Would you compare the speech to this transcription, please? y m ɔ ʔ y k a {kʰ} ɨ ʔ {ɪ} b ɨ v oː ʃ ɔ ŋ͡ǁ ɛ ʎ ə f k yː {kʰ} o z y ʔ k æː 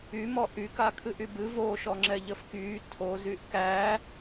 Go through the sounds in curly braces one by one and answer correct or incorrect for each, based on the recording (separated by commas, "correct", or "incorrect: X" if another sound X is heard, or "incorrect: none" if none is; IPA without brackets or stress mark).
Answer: correct, incorrect: y, incorrect: tʰ